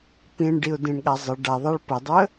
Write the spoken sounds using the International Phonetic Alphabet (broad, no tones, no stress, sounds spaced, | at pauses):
p ĩ ɳ ɖ i ʊ̯ d ĩ ɳ ɠ a zˤ ə ɖ a ðˤ a ɭ p ə dˤ ə